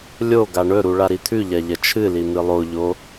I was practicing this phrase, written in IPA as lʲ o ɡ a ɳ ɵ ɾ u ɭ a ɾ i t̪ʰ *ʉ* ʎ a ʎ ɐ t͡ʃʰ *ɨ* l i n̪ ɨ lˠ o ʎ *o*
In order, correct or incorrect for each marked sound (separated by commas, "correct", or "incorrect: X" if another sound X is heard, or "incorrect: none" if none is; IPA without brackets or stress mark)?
correct, correct, correct